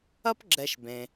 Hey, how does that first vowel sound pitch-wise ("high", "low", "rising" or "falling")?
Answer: high